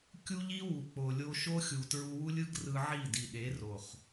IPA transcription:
kʲ u˦ ʎ i˦ w u˨ k͡p o˨ lʲ o˧ ʃ o˦ xʲ u˨ t ɹ u˧ w u˦ lʲ ɯ˦ ɡ r ɯ˧ ʕ i˦˨ d i˨ ɗ e˨˦ r o˨ χ

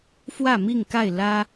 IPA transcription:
f w ä˥˨ m i˥˨ ŋ k a˥˨ ɪ̯ l ä˦

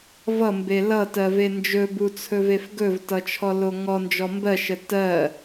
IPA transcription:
v ʌ m b e l ʌ t ɜ v e n d͡ʒ ɵ b u t͡sʰ ɵ v e f ɡ ɵ v t ʌ t͡ʃʰ ɔ l o ŋ ɔ n d͡ʒ ɔ m b ɜ ʃ ə t ɜ

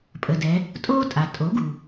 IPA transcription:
pʼ ə˩ d ɛ˩˧ | tʼ oː˥ tʼ a˩ tʼ o˩˥ ɡ u˩

